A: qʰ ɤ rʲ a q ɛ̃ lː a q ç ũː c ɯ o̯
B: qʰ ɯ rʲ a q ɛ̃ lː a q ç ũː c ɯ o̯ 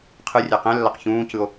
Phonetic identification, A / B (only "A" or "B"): B